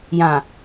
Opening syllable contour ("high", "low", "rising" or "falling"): low